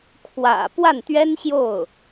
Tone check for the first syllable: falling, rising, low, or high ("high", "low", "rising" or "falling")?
low